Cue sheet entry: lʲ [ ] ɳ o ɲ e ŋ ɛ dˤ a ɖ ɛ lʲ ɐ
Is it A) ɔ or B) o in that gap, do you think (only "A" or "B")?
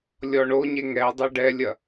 A